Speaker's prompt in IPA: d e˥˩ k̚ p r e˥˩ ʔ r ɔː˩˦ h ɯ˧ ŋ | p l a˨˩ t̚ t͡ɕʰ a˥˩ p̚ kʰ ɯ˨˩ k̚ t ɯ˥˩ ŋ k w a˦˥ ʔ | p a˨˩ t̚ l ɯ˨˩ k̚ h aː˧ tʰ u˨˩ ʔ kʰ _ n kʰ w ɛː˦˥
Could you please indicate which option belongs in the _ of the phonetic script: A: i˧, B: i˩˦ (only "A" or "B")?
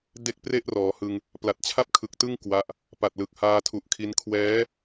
A